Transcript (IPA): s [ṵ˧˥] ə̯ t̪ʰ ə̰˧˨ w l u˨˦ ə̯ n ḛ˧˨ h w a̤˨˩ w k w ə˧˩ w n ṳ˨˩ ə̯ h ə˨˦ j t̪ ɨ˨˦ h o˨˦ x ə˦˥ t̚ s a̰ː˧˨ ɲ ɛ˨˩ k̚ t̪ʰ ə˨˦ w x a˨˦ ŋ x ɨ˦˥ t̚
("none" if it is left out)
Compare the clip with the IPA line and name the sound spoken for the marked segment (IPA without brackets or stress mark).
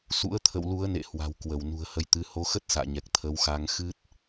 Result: ṵ˧˥